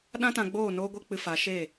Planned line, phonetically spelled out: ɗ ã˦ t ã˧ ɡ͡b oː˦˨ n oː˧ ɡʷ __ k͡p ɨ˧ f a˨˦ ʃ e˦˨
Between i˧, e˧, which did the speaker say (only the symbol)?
e˧